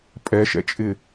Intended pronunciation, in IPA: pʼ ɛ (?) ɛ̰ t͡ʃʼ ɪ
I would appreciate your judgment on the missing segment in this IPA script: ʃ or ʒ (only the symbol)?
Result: ʃ